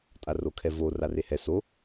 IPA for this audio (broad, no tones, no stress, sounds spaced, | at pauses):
tʼ a r o kʰ ɛ v o r a r e h ɛ s o